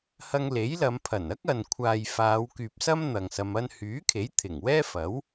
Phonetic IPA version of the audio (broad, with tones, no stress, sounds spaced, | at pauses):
h ɐ˧ ŋ l e˨˥ j l ɐ˨˧ m pʰ ɐ˨˩ n ɐ˥ k̚ ɐ˨ n kʷʰ aː˨ j f aː˨˧ w k yː˨ p̚ s ɐ˥ m n̪ ɐ˨ ŋ s ɐ˧ m ɐ˧ n h yː˨˥ kʰ e˨˥ j t̪ʰ ɪ˨˩ ŋ w ɛː˥ f ɐ˨˥ w